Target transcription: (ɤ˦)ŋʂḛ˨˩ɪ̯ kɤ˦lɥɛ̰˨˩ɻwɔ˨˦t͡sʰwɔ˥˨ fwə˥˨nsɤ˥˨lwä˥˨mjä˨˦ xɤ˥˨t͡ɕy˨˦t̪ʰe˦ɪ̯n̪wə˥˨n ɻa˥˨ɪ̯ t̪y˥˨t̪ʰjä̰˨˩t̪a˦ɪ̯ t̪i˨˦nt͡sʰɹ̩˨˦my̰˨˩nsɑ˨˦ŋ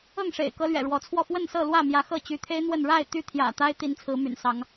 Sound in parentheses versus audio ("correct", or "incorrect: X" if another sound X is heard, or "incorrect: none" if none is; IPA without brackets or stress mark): incorrect: ɤ˥˨